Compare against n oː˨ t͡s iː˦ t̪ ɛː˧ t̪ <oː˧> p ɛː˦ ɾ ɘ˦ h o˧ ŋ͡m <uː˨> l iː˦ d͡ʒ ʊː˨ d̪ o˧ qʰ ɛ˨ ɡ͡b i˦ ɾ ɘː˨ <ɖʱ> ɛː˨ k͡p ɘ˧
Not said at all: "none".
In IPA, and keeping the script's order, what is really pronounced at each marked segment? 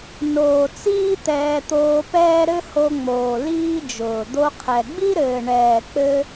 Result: oː˧, oː˨, ɳ

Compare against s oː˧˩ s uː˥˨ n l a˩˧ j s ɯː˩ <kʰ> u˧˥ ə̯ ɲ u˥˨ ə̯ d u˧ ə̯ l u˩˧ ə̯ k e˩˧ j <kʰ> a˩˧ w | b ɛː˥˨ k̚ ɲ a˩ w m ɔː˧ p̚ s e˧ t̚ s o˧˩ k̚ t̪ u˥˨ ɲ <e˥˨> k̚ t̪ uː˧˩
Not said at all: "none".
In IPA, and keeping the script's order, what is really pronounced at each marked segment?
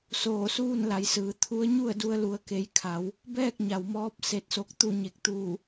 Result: t̪ʰ, kʰ, e˧˩

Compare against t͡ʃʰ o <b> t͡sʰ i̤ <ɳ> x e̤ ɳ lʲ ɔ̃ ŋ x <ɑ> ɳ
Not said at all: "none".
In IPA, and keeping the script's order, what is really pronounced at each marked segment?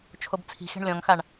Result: b, none, a

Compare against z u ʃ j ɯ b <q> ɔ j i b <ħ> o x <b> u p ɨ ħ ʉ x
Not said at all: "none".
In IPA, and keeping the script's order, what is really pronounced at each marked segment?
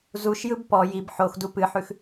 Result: p, ħ, d

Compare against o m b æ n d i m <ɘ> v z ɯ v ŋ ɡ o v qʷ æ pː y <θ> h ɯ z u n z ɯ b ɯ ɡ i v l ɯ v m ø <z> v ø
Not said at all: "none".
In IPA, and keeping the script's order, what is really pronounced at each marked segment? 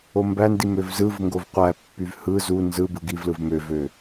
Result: ø, v, none

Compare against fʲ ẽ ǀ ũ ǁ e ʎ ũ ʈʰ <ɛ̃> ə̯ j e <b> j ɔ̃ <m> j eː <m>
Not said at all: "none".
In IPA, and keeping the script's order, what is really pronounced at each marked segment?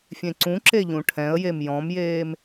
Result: ɛ̃, m, m, m

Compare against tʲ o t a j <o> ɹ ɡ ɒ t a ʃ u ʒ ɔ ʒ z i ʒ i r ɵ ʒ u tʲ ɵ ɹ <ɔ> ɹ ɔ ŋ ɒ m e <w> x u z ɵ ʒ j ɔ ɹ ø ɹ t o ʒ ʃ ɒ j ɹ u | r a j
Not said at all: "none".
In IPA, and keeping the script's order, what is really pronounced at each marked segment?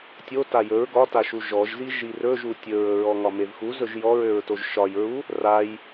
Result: ɵ, ɵ, v

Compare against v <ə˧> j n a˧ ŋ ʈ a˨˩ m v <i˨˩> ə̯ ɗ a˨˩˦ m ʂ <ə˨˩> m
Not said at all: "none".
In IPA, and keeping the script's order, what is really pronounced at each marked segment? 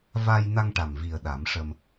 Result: a˧, i˨˩, ə˧

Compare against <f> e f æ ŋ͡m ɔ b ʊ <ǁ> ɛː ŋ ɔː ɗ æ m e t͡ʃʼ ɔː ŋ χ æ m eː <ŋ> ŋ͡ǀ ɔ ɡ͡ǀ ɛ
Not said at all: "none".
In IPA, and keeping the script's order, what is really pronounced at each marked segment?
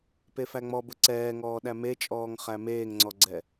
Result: p, ǀ, ŋ

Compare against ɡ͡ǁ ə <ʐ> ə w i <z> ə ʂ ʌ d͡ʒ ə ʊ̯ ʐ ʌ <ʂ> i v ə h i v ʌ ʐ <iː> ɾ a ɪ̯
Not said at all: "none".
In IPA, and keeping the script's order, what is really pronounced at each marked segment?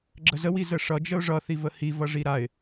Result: z, z, θ, i

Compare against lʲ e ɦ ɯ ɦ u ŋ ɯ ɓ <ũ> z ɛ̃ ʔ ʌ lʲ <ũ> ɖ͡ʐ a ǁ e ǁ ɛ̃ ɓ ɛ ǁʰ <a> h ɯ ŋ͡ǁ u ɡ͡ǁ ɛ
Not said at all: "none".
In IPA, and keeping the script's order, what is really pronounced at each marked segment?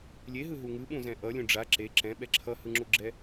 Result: ũ, ũ, ʌ

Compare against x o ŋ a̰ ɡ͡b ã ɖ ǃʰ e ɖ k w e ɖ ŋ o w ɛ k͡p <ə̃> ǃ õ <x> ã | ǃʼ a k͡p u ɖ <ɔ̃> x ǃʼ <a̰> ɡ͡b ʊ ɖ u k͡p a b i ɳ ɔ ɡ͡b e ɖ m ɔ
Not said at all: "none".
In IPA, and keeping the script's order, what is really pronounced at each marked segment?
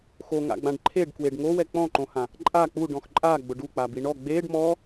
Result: ɔ̃, h, ɔ̃, a

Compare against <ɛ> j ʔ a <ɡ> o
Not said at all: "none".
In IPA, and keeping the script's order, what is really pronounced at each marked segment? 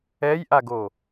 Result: ɛ, ɡ

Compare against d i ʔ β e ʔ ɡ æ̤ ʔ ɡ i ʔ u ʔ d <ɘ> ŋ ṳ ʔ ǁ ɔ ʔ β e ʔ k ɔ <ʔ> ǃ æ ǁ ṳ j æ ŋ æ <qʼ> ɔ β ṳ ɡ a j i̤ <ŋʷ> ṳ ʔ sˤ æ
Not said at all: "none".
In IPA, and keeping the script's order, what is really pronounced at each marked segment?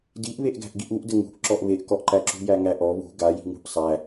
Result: ɘ, ʔ, ʔ, ŋ

